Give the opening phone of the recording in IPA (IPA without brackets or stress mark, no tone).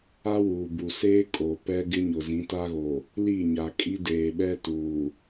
a